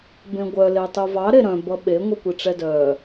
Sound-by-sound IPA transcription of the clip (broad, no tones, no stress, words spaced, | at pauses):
bẽɡʷœ letˤuvɑ ɾeɾœ̃ bʌɓe ŋʷikʷiʈ͡ʂɛdœ